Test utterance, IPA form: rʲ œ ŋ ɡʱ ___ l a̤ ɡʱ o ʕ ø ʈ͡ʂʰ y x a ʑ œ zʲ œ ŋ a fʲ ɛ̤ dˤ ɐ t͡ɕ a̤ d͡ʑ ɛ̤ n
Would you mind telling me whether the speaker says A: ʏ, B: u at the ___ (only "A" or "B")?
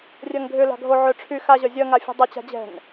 A